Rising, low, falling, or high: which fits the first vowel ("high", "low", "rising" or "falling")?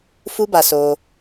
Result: high